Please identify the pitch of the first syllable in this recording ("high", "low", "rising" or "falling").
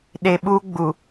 low